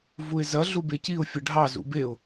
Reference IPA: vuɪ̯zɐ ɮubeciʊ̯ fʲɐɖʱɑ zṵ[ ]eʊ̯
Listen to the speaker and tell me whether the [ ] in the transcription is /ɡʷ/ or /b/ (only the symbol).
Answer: b